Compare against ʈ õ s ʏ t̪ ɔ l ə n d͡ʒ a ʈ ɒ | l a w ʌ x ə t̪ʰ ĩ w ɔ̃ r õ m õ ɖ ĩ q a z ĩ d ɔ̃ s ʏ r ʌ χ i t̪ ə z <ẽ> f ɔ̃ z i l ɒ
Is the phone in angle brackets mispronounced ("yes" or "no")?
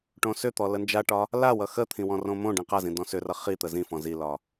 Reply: yes